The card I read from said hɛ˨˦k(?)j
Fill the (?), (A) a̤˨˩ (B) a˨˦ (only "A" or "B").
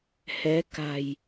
A